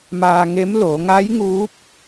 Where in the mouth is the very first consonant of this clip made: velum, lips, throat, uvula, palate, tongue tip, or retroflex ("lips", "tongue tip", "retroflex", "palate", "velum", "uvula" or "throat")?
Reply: lips